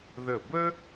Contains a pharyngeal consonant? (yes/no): no